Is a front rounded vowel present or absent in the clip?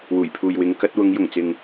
absent